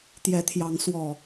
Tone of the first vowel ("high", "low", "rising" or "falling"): rising